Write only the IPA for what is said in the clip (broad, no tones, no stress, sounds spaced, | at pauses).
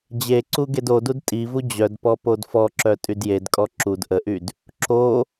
d͡ʑ e ǀ u ɡ e d o d u d tʼ i v u d͡ʑ œ d p ɔ p o d f ɔ ǁ œ tʼ y d j e d kʼ ɔ ǁ u d ʔ ə ʔ y d | ǁ o